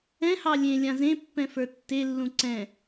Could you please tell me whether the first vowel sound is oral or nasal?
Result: nasal